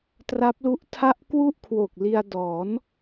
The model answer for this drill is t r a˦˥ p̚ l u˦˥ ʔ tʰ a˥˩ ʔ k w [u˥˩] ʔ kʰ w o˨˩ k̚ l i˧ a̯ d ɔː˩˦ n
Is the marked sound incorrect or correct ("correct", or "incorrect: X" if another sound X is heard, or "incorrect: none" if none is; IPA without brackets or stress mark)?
correct